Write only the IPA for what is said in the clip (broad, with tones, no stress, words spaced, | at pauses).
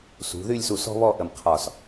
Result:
sṳ˩˧ðy˥˧lʲsu˧˩ sɔ̤˥βɔ˥˧ʔə˧˩mqʰɒ˧˩s